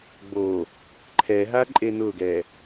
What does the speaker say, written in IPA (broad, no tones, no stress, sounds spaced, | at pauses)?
ɡ͡b o | ǃʰ ɛ ɦ a ǃʼ e n ʊ ɡ ɛ